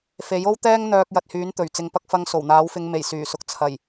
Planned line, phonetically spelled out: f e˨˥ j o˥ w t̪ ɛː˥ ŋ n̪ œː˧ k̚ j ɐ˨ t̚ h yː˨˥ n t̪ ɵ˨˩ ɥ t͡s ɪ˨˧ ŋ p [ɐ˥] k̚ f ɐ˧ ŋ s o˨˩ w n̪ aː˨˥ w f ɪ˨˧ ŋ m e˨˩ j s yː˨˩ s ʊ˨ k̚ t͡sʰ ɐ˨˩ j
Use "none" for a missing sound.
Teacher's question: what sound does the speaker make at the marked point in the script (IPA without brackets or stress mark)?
ɐ˧